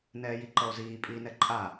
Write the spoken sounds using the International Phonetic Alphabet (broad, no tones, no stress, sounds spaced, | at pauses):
n ɛː j i ǃ ʌ o̯ z iː pʼ iː n ɛ ǃʼ a